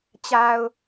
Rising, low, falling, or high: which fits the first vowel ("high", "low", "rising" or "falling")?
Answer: low